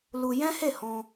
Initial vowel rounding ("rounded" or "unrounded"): rounded